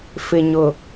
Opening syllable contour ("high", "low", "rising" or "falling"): low